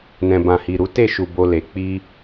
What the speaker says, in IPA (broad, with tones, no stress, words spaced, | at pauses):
nɛ̃˨bã˨hi˨ɾu˨˦ te˦˨ʃu˨ bo˧le˨ k͡pi˧